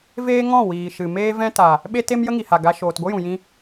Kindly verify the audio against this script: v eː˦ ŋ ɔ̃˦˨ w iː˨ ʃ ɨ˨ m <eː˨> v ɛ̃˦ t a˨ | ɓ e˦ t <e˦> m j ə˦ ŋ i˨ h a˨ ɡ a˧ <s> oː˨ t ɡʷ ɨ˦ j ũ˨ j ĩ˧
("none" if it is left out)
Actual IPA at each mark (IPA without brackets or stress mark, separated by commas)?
eː˦, e˦, ʃ